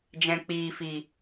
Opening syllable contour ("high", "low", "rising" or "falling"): low